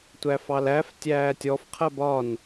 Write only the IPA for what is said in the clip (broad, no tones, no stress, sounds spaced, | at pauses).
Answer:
tʷ æ f ɑ l æ f tʲ æː tʲ ɔ f qʰ ɜ b ɒ n